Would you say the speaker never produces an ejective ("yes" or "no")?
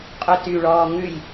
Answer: no